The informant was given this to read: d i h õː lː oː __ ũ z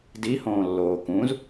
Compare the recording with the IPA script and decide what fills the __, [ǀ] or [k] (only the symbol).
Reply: k